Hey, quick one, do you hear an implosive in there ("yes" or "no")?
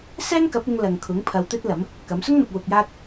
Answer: no